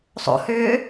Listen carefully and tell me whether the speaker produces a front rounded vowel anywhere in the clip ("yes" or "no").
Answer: yes